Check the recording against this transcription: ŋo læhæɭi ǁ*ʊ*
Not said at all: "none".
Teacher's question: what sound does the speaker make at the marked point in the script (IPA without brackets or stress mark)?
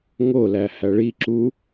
u